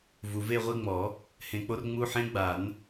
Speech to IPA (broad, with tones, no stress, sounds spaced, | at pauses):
v u˨ v e˥˧ ʁʷ i˧˥˧ ŋ͡m ɔ˨˩˦ | h ẽ˨ k͡p o˦˥ r ŋ͡m u˧˥˧ ħ ẽ˦˥ ɡ͡b a˨˩˦ n